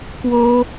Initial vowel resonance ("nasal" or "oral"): oral